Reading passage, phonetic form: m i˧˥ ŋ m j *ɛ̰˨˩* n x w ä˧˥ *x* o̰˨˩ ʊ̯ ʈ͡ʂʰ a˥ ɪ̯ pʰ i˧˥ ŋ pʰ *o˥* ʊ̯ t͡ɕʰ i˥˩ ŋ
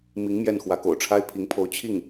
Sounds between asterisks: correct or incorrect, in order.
incorrect, incorrect, incorrect

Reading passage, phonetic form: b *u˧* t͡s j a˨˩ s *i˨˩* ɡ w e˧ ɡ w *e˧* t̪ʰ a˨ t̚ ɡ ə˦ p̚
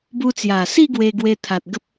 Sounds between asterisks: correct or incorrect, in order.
correct, incorrect, correct

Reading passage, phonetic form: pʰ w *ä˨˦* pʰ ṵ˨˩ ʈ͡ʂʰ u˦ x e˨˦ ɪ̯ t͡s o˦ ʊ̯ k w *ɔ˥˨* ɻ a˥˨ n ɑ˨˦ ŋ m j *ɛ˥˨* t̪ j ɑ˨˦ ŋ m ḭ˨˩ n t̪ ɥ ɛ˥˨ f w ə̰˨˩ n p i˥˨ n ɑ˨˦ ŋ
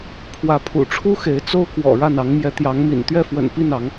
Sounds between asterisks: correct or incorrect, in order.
correct, incorrect, incorrect

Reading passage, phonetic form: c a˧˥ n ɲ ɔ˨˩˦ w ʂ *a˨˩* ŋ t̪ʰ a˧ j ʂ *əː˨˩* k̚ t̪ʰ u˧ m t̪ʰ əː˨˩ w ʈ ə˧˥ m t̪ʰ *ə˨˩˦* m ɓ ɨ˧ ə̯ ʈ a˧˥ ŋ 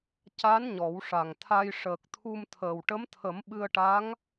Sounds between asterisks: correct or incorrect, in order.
correct, correct, correct

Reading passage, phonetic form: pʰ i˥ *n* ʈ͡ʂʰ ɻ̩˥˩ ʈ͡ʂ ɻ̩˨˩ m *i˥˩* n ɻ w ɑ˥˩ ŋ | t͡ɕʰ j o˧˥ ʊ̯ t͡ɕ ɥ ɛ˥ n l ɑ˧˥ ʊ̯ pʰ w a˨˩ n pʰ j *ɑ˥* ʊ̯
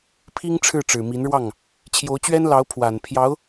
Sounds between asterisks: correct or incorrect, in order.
incorrect, incorrect, incorrect

